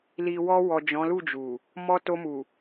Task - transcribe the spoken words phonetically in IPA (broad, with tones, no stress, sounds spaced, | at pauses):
l i˨ w ɔ˧ w ɔ˨ d͡ʒ ɔ̃˨˦ l u˦˨ d͡ʒ u˨ | m ɔ˧ t o˧ m u˨